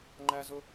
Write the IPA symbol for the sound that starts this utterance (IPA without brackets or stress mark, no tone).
ŋ͡ǃ